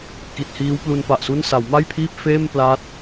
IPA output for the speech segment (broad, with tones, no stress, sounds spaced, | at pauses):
k i˨˩ t̚ h iː˦˥ w p l u˧ n p a˨˩ ʔ s u˥˩ n s a˩˦ w m a˥˩ j pʰ iː˥˩ p̚ f eː˥˩ m p l a˥˩ t̚